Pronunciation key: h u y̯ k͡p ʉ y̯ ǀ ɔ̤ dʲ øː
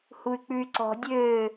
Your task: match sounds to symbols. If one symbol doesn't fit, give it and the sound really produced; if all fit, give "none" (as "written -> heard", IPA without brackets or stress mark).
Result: none